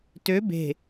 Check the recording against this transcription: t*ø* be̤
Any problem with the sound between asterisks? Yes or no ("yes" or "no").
no